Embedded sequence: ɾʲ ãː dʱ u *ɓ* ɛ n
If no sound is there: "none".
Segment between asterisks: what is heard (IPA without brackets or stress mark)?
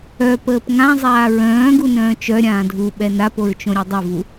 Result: ɓ